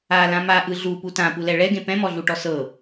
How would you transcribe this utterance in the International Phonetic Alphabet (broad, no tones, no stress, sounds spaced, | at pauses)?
a l ã m a ʔ ɯ ɮ u p u t ã p u l ɛ ɭ ɛ ɡ ẽ p ɛ̃ m ɔ ɮ u ʈ ɔ s ɤ